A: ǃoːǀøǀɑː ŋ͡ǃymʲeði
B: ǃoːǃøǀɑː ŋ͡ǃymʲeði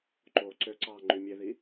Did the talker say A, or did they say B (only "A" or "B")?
A